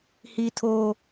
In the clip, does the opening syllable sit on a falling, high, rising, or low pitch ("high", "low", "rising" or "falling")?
high